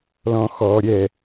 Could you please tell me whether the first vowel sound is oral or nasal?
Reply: nasal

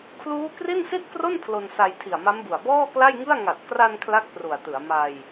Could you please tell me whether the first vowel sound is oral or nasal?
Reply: oral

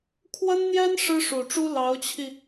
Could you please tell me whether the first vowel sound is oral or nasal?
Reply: oral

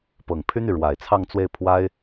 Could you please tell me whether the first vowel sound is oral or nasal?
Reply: oral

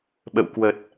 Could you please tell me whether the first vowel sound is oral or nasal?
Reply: oral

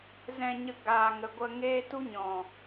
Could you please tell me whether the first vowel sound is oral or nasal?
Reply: nasal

